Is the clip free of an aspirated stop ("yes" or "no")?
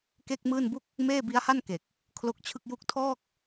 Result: no